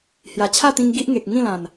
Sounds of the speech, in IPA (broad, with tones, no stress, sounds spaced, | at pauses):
h j a˨˩ t͡ɕʰ a˥˧ t̪ ĩ˧ ŋ ɡ i˦ ʔ ŋ e˨ k̚ ŋ ĩ˥˧ l ã˨˩ n